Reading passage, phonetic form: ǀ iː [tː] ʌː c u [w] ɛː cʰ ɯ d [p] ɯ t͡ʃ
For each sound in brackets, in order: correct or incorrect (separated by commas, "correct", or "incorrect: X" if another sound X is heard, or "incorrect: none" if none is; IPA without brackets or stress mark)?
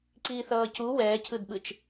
incorrect: θ, correct, incorrect: ɓ